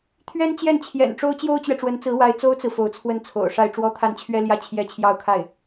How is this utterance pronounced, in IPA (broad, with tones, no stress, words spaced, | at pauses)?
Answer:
t̪ʰɥɛ˥nt͡ɕjɛ˥˩nt͡ɕʰjɛ̰˨˩nʈ͡ʂo˥ʊ̯ t͡ɕjo˥ʊ̯t͡ɕɥɛ˨ʈ͡ʂwə˧˥nt͡sɹ̩˧˥ wa˧˥ɪ̯t͡so˥ʊ̯t͡sɹ̩˨ fo˧˥ʊ̯t͡sʰwə˥˩nt͡sʰo̰˨˩ʊ̯ʂa˥˧ɪ̯ ʈ͡ʂwɔ˥˧t̪ʰa˥˩nt͡ɕʰɥɛ˥ljä˥ t͡ɕʰjɛ˥t͡ɕʰjɑ˥˧ʊ̯kʰa˥˩ɪ̯